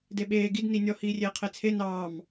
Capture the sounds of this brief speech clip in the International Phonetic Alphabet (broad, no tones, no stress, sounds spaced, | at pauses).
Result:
d e ɓ eː ɡ i d n i nʲ ɔ h iː rʲ eː qʰ e t͡sʰ e n ɑː m